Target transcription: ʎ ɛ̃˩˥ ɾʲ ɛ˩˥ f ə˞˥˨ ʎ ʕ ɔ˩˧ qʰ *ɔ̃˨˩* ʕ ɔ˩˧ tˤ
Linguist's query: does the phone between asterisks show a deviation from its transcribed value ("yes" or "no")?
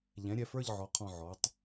no